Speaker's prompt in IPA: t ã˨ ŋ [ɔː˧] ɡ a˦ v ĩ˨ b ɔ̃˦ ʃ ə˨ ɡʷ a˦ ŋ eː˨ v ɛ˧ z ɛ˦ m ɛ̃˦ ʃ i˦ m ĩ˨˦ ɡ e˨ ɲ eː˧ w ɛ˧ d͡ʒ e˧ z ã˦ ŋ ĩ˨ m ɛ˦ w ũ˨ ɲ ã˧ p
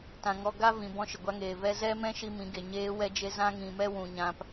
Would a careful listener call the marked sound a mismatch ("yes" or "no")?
yes